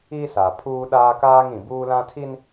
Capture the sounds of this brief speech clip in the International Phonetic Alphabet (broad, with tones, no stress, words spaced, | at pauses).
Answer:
i˦sa˨ pʰuː˦ɗaː˦kaː˦ŋ ĩ˨buː˦lã˦tʰi˦n